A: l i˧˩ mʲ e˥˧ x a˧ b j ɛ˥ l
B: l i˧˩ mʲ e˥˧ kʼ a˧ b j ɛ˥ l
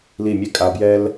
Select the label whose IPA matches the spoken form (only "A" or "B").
B